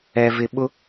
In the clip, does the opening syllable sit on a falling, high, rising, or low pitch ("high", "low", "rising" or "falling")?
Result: high